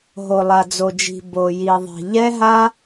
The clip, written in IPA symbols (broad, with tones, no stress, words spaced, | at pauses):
ɦo˨lˠa˨d͡zo˨d͡ʒi̤˨ bo˨ji˨ðˤi̤˨ ʎɛ˦ɦa˦